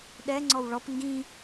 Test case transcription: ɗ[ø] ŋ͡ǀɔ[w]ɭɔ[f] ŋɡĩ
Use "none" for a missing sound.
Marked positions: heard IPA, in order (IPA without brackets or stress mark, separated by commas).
ɛ, w, p